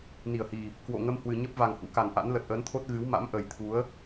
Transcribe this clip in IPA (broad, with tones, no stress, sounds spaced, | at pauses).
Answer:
n i˧˩ ə̯ h i˨˩ | k w o̰˧˨ ŋ ə˧ m h w ɨ˨˩ ɲ ə˦˥ p̚ v a˨˩ ŋ h ṵ˧˥ k a˨˩ n ʔ a̰˧˥ n l ə˨˩ t̚ ʔ əː˨˦ n t̪ʰ o˦˥ t̚ ɣ ɨ˨˦ w m a̰˧˥ m ʔ ə˨˩ j t̪ʰ u˨˦ ə̯